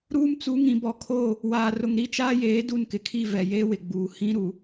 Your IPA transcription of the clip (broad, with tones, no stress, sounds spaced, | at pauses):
ɾ uː˦ m t͡s u˨˦ ŋ ĩ˨ b ɔ˨ kʰ o˦˨ | w aː˨ r ʊ˨ ŋ ɾ i˦ t͡ʃ aː˦ j eː˨˦ d u˦˨ n k ɪ˨ kʰ i˦˨ v ɛ˨ j eː˦ w ɪ˨ ɡ͡b uː˨ h ĩ˦ ɾ u˨